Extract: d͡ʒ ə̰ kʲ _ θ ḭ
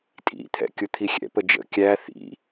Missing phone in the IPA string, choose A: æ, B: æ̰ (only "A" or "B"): A